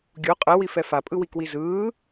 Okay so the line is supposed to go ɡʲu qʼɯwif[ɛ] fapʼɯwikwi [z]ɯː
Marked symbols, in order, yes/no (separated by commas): yes, yes